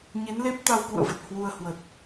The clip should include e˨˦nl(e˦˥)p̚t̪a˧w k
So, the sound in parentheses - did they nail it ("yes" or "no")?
yes